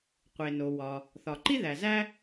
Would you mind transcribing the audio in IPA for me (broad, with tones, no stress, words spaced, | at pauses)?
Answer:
qʷe˩no˩wɒ˩ | θɒ˩ǃi˥ðæ˩zæ˥